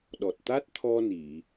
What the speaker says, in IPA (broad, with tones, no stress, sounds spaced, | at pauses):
ɗ ɔ˨˩ t̚ t̪ a˦˥ t̚ t̪ʰ ɔ˧ n i˨˩˨